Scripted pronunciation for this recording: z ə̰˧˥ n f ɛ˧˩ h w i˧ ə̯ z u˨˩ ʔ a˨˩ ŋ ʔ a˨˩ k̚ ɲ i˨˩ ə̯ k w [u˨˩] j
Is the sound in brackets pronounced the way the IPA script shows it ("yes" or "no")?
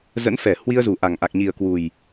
yes